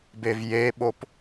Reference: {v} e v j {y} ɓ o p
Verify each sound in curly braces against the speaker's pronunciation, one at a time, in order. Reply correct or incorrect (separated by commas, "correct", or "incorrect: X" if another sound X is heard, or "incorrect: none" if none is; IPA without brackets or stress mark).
incorrect: b, incorrect: e